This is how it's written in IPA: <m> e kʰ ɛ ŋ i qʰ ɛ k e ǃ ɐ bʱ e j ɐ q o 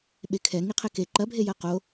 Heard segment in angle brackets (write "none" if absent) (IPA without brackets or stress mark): ɓ